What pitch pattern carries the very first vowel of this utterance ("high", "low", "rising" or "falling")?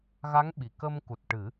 rising